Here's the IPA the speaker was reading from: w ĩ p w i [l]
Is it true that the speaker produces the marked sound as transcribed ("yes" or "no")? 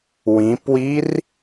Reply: no